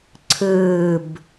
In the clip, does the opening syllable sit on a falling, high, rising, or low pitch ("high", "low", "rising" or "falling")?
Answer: falling